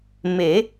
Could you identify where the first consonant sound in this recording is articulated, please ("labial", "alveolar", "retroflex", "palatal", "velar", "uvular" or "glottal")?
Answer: labial